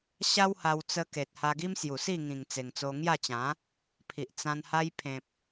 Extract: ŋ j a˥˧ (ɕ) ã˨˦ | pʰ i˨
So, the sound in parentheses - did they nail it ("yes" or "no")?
no